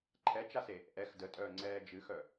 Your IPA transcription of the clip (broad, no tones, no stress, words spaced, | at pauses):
ǃʰɛt͡ʃase | ʔɛx dətʼœːŋ͡ǀɛː d͡ʒɨxœ